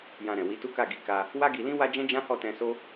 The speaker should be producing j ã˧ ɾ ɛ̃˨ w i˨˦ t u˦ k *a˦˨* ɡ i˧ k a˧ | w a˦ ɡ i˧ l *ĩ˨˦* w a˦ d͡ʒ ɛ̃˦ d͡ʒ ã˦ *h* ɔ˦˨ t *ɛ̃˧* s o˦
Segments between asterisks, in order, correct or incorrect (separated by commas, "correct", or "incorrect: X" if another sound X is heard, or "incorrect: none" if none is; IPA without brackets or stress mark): correct, incorrect: ĩ˦, correct, correct